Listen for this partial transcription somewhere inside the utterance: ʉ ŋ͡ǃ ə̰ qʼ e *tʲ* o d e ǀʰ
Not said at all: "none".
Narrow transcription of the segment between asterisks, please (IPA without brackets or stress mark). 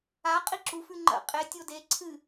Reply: tʲ